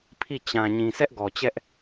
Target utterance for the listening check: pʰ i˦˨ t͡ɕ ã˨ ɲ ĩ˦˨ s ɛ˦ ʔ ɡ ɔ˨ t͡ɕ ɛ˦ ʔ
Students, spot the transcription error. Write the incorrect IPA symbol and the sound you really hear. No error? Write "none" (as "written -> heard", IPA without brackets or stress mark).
ĩ˦˨ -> ĩ˨